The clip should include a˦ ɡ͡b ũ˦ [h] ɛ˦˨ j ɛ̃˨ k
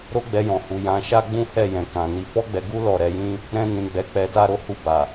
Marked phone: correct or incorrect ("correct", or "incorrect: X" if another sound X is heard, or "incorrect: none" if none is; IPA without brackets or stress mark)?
correct